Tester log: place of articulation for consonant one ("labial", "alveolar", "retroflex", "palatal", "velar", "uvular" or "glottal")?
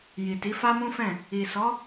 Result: palatal